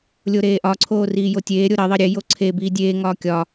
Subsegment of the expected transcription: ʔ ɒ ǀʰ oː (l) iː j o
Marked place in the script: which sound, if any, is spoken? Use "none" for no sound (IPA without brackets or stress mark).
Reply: r